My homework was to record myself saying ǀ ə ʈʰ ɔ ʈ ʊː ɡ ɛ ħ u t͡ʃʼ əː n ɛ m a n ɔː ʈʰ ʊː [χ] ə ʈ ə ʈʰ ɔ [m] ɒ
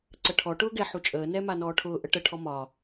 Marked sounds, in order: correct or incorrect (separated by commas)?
incorrect, correct